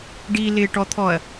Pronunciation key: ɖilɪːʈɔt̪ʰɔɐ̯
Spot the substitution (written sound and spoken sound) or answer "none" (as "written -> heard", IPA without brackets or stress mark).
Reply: none